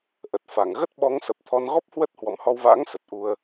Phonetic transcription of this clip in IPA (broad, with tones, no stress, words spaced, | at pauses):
ʔə˨˩t̚fa˧˩ŋ ɣə˦˥t̚ ɓɔ˨˦ŋsə˨˩p̚t̪ʰɔ˧n ɣɔ˦˥p̚hwə˦˥t̚ hwɔ̰˧˨mhɔ˧wva̰ː˧˥ŋ sə˨˩t̚ʔu˧ə̯